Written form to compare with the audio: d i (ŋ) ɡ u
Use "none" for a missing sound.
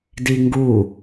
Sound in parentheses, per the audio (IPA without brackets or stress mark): ŋ